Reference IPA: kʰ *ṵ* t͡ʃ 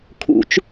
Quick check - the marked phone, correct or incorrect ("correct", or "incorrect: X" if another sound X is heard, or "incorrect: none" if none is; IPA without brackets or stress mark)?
correct